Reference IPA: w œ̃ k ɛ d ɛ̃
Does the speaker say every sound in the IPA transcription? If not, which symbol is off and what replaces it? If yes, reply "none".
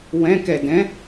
œ̃ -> ɛ̃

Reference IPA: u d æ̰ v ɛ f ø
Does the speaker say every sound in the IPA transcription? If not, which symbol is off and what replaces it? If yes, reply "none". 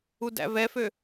none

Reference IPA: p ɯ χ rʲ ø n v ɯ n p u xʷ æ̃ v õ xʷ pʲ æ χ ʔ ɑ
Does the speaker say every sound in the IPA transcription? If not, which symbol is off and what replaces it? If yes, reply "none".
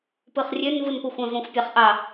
none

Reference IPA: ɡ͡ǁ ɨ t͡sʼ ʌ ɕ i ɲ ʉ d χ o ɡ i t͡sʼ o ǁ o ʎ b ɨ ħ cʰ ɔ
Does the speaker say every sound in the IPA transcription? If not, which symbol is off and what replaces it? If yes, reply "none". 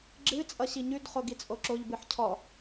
none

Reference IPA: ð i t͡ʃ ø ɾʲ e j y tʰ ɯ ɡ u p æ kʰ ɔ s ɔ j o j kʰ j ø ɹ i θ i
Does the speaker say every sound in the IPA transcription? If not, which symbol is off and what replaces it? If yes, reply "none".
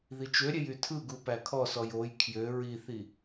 none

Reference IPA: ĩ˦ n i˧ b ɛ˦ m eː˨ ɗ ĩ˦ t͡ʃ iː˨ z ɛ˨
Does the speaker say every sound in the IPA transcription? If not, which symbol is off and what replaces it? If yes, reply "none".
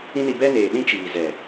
m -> n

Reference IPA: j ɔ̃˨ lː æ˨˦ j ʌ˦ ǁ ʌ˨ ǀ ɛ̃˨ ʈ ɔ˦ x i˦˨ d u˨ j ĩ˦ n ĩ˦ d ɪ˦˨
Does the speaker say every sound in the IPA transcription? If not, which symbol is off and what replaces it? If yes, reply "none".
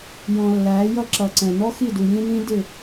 ʈ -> n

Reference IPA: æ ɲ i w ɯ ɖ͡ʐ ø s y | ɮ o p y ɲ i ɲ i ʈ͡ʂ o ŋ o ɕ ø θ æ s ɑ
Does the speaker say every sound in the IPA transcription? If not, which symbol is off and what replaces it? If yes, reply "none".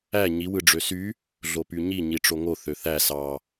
ɕ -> θ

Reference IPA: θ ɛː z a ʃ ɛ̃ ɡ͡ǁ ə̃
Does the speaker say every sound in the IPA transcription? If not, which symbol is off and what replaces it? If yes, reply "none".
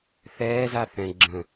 ʃ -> θ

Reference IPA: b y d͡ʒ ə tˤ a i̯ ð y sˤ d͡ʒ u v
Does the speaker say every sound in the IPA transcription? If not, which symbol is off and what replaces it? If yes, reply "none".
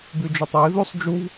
none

